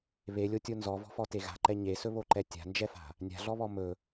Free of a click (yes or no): no